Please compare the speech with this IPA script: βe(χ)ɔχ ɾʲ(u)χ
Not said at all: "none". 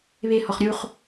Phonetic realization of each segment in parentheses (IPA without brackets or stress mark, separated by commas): h, u